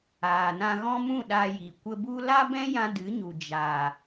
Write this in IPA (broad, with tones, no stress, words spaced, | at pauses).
aː˨nã˧ɣɔ̃˦mũ˦˨ ɗa˧ji˨ kʷə˧bu˦ la˦bɛ̃˦jã˧ dɨ˨˦ɲu˨ d͡ʒa˨